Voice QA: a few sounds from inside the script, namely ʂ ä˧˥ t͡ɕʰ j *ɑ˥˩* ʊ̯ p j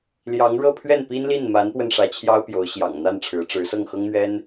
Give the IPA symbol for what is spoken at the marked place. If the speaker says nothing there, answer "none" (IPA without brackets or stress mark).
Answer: ɑ˥